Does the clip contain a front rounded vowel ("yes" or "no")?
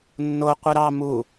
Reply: no